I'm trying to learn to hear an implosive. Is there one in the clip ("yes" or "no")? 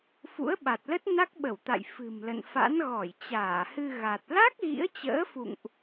yes